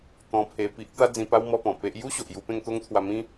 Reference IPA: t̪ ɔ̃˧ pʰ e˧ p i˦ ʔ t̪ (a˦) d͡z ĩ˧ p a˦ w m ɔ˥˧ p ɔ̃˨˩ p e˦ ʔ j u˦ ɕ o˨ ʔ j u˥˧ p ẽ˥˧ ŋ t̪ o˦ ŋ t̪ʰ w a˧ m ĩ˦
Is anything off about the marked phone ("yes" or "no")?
no